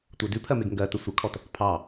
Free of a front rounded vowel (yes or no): yes